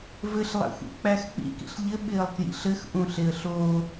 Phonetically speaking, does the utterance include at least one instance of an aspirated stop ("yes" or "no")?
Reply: no